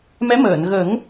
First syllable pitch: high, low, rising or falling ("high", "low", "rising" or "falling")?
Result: rising